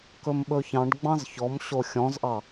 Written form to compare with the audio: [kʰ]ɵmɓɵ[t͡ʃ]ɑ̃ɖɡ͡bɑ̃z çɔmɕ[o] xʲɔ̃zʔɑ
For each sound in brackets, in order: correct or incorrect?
incorrect: k, incorrect: ç, correct

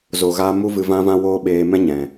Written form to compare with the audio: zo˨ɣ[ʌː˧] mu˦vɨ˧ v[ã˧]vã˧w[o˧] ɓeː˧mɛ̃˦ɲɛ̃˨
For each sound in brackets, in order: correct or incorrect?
incorrect: aː˧, correct, incorrect: oː˧

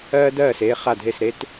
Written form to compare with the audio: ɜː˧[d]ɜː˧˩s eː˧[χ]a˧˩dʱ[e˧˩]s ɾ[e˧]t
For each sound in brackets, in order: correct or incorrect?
correct, correct, correct, correct

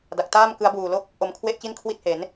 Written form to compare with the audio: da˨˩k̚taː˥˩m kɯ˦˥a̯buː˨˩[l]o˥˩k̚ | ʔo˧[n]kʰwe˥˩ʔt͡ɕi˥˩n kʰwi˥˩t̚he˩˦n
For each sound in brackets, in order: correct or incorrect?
correct, incorrect: m

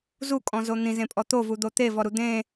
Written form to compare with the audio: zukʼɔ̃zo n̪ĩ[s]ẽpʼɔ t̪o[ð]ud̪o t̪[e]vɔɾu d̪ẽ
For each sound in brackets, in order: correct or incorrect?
incorrect: z, incorrect: v, correct

